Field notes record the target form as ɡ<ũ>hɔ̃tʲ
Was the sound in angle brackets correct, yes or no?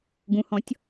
yes